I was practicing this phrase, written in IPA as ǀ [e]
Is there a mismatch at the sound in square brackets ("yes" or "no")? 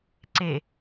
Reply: no